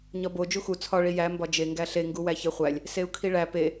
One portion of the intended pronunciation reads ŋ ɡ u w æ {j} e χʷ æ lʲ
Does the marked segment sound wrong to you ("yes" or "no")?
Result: yes